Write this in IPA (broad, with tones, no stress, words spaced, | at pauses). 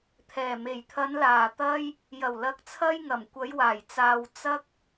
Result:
t̪ʰɛː˨˩me˨˩jt̪ʰɐ˨˧n laː˨˩t̪ɐ˧j | jɐ˨˩wlɐ˨k̚t͡sʰɐ˧j ŋɐ˨˩mkʷɐ˨˧jwaː˨˩j t͡saː˨w t͡sɐ˧k̚